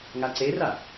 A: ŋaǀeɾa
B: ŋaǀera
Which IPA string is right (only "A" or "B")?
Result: B